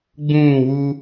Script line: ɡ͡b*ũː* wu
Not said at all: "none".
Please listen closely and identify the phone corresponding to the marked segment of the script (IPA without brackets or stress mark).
ũː